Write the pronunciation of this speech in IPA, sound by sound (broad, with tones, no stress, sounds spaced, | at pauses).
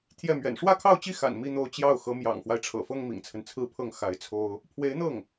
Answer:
t̪ʰ j ɛ˥˩ m ɥ ɛ̰˨˩ n ʂ w ä˥˧ kʰ ɑ˥˧ ʊ̯ t͡ɕ i˥˩ x a̰˨˩ n m i˥˧ n̪ o˥˧ ʊ̯ t͡ɕ j ɑ˥˩ ʊ̯ x ɤ˧˥ m j ɑ̰˨˩ ŋ x w a˦ ɪ̯ ʈ͡ʂʰ ɤ̰˨˩ f ɤ˥ ŋ m ḭ˨˩ ŋ t͡sʰ ə˦ n t͡sʰ ɹ̩˥˧ pʰ ɤ˥˩ ŋ x a˧˥ ɪ̯ t͡sʰ o˥ ʊ̯ | pʰ w e˧˥ ɪ̯ n̪ ɤ˥˩ ŋ